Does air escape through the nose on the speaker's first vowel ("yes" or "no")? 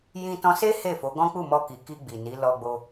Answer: yes